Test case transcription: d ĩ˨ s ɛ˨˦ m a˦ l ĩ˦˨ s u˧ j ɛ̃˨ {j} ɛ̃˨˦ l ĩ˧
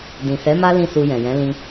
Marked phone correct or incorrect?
correct